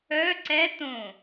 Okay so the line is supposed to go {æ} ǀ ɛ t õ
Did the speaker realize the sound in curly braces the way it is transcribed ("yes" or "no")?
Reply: no